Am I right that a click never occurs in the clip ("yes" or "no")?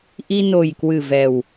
yes